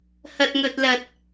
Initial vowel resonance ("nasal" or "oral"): oral